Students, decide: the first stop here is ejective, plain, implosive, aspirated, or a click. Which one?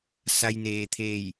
aspirated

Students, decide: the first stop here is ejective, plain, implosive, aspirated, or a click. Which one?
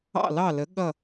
implosive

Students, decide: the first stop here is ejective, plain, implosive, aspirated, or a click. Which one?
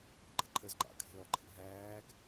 click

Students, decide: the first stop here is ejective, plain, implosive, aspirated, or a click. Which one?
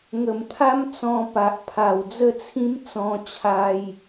aspirated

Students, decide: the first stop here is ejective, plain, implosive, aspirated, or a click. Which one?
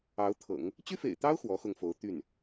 aspirated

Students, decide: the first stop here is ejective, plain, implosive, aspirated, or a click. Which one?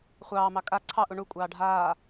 ejective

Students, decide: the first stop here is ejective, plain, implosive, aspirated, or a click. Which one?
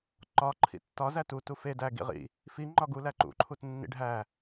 click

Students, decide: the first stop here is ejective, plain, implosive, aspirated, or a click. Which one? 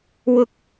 plain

